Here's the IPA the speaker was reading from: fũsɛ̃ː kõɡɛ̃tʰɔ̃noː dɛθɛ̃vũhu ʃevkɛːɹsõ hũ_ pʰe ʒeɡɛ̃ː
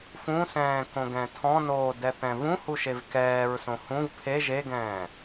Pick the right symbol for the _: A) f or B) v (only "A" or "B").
B